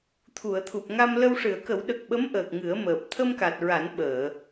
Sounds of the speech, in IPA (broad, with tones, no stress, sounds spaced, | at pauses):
t̪ʰ u˨˩˨ ə̯ t̪ʰ u˨˩ p̚ ŋ a˧ m l ə˧ w ʂ ɨ˨˩˨ ə̯ k ə˨˩˦ w ɗ ə˨˩ k̚ ɓ ə˧˥ m ʔ əː˨˩ k̚ ŋ ɨ˨˩˦ ə̯ m əː˨˩ p̚ t̪ʰ ə˧ m k a˨˩ t̚ ɹ a˨˩˦ n ɓ əː˨˩˨